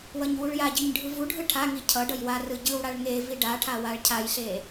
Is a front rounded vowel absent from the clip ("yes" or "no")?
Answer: yes